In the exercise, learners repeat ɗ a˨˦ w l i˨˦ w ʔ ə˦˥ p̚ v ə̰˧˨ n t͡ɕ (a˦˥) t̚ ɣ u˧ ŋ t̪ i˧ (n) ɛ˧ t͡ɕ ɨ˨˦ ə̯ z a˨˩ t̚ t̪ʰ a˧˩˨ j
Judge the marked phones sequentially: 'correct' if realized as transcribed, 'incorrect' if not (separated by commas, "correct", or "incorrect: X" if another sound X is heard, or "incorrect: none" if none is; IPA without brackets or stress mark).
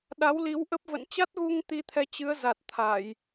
correct, incorrect: t̪ʰ